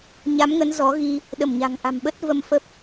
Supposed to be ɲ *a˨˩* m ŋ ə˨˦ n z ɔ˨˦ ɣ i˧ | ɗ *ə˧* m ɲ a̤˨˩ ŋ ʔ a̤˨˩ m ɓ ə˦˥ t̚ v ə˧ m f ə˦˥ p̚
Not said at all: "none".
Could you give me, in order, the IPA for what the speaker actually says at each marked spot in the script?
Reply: a˨˦, ə˧˩

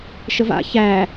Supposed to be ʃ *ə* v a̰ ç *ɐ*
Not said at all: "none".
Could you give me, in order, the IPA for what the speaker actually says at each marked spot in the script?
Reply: ə, æ

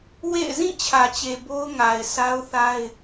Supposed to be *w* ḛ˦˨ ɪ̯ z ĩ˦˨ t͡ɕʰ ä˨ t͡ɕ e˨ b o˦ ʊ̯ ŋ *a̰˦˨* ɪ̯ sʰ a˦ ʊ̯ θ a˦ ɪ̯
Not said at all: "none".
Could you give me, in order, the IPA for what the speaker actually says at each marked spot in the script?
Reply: w, a˨

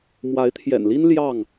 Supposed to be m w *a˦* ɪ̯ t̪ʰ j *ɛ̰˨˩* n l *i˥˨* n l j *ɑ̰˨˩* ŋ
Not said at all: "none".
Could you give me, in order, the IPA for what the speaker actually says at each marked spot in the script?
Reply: a˨˦, ɛ̰˨˩, i˦, ɑ˥˨

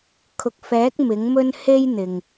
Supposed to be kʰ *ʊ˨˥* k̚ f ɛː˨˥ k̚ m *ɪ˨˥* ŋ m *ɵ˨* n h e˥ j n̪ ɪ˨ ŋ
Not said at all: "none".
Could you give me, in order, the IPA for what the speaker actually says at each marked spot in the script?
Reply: ʊ˨, ɪ˨˥, ɵ˥

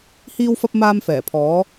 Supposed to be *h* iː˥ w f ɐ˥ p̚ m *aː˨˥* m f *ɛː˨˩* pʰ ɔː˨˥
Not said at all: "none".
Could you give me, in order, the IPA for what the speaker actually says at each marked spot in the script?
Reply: h, aː˥, ɛː˨˩

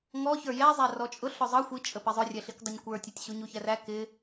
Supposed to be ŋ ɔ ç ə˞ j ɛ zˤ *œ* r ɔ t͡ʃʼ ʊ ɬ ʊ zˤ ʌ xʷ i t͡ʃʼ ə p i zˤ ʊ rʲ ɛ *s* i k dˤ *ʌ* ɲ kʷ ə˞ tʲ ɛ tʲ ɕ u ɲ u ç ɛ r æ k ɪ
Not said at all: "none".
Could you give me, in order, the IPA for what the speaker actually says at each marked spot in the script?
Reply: æ, ɬ, ʌ

